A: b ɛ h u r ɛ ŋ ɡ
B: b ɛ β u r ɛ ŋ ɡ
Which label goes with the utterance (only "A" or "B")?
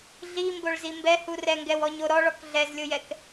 A